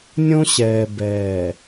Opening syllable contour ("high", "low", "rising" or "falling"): high